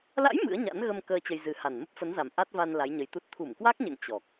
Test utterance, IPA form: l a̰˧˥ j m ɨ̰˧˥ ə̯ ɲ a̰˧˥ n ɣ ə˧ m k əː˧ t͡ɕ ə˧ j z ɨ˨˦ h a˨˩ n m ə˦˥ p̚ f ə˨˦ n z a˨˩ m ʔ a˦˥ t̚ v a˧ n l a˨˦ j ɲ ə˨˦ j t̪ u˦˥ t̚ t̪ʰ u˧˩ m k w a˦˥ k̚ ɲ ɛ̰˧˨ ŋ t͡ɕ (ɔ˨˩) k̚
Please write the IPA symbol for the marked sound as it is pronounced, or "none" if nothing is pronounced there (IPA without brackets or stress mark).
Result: ɔ˨˩